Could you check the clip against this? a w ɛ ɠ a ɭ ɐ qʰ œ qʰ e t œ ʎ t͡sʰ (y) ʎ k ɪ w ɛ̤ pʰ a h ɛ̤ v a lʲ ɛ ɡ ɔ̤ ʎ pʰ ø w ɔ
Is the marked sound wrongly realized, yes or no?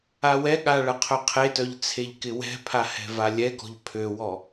yes